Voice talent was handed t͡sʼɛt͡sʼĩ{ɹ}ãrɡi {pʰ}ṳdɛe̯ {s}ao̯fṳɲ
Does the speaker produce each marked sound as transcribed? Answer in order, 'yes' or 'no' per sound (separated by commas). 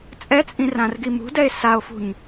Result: no, no, yes